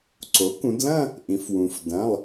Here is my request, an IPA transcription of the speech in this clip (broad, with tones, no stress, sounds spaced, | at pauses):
ǀ o˩˥ k ũ˩˧ d l ɐ̃˥˧ | ʔ ĩ˩˧ f w ũ˩ f d ɐ̃˩˧˩ lˠ